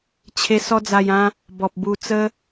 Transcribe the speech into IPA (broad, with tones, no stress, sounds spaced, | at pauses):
t͡ɕʰ e˧ s ɔ˦ d͡z a˧ j ã˦ | b ɔ˨ p̚ b u˧ t͡s ə˦